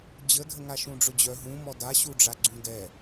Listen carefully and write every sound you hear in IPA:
d͡ʑ ə dʱ ə ŋ a ʃ ũ ɖ͡ʐ ʊ d͡ʑ œ ɦ ũ m ɔ d a ɕ u ɖ͡ʐ a ɡ͡ǀ ũ d ɛ

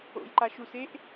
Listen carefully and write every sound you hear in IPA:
o̰ j ǃ a ʃ u s e ʔ

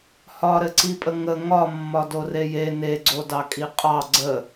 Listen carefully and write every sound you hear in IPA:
h ɒ ɾ ɘ ǀ i pʼ ə ŋ ə ŋ ɒ mː ɒ d o r e j e n e ɡ͡ǀ o d ɑ kʼ i qʼ ɑ ɡ͡ǀ ə

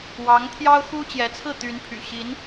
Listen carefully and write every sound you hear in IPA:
w ɑ˧˥ ŋ t̪ʰ j ɑ˥ ʊ̯ x u˥ t͡ɕ j ɛ˧˥ t͡sʰ ɹ̩˥˩ t̪ y˧˥ n pʰ y̰˨˩ ɕ i˧˥ n

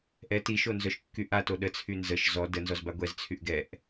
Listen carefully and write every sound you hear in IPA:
ʔ ɛ t i ʃ o n z œ ʃ kː y ʔ a t o ɗ ə t͡sʰ y n z ə ʃ z ɔ d ə n z ɔ z b a ɡʷ ɛ z t͡sʰ y ʔ ɡ ɛ ʔ

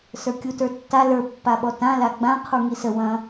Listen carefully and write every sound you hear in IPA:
s ə˞ kʲ u t ə˞ tː a l ə˞ pː a ɓ ɔ t ã l a ɡ͡b ã qʰ u ŋ i s ə w ɐ̃

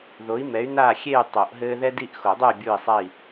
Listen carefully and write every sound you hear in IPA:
ð o˨˦ i̯ m ɛ˨˦ y̯ n aː˦˨ xʲ e˦˨ y̯ tˤ o˨˩˦ ʔ ɦ ɘː˦ ð ɛ˦ d i˦˨ ʔ x o˨˩˦ dˤ ɨ˦˨ y̯ bʲ uː˦˨ i̯ sˤ ɛ˦˨ i̯

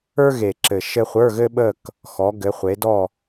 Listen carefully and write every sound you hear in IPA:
ə˞˥ ɣ e˨˩ ǁ ɘ˨˩ ʃ ɘ˥ χʷ ə˞˧˥˧ ɣ ɘ˥ ɓ ə˥˧ k | x ɔ˨˦ ɡ ɘ˨˦ χʷ e˨˦ d ɔ˥˧

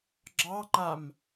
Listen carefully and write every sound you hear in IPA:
ɡ͡ǁ ɑ ŋ͡ǃ a m

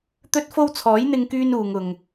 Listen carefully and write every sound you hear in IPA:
t̪ ɵ˥ t̚ f o˥ w t͡sʰ ɔː˨˥ j n̪ ɪ˧ ŋ k yː˧ n uː˨ ŋ ʊ˨ ŋ

